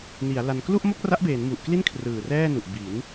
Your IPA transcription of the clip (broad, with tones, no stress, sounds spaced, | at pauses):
n i˩˦ a̯ l a˧ n k l u˥˩ ʔ m o˥˩ k̚ r a˦˥ ʔ b eː˩˦ n m u˨˩ ʔ k l i˥˩ n kʰ r ɯː˨˩ r ɛː˥˩ n u˨˩ ʔ b i˩˦ n